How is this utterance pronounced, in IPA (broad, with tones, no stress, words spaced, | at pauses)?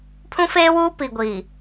pʰũ˦feː˦wuː˦ pi˨ɡʷiː˨